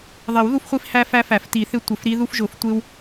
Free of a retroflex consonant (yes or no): yes